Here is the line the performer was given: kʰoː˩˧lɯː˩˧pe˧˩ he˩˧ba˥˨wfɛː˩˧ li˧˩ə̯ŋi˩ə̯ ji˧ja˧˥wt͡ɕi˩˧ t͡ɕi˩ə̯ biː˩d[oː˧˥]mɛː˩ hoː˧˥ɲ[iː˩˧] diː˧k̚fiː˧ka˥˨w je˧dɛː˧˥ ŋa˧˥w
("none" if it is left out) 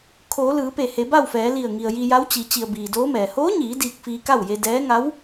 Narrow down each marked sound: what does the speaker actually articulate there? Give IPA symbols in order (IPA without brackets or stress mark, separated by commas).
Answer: oː˧˥, iː˩˧